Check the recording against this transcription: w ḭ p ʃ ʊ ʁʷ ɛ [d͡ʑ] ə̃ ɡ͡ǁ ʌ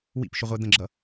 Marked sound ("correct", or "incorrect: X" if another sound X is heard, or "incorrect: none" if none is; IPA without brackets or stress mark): incorrect: d̪